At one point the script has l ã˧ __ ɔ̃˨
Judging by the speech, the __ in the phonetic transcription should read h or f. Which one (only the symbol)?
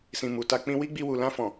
f